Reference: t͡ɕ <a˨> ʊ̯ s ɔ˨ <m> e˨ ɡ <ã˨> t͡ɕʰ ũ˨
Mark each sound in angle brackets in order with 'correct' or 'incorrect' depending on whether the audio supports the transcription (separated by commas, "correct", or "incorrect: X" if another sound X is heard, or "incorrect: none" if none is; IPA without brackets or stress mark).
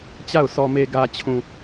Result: incorrect: a˦˨, correct, incorrect: ä˨